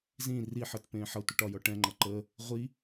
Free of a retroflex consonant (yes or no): no